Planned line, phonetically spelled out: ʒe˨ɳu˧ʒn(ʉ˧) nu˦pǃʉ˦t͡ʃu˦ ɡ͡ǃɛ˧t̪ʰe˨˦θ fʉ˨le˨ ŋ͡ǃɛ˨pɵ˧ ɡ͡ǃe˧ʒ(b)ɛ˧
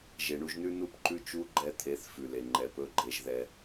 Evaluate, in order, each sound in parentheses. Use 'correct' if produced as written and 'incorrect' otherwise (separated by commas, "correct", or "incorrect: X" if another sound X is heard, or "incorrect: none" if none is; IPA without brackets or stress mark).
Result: incorrect: ʉ˦, incorrect: ð